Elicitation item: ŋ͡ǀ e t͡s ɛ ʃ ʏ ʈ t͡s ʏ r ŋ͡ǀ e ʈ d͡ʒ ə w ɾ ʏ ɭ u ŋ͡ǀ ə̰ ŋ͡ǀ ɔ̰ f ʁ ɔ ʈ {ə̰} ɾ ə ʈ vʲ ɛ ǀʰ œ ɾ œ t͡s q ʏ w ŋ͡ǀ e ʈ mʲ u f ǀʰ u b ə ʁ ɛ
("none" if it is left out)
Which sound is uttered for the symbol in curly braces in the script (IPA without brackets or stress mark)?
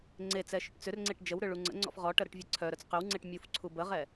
ə